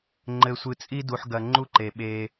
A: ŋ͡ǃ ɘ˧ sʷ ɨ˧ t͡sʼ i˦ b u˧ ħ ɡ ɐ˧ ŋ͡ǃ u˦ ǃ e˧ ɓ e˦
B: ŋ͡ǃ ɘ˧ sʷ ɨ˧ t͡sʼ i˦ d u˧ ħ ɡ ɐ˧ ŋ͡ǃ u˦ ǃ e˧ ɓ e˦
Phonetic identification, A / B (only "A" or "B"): B